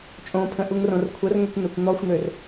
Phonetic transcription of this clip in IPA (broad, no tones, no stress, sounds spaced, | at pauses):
t͡ʃʼ õ pʰ ə̃ ʔ u ŋ r õ r kʷʰ ə r ŋ ø kʷ n̪ ø kʷ n̪ ɔ xʷ n̪ ø r